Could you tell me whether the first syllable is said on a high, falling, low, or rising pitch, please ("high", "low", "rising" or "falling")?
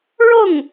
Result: falling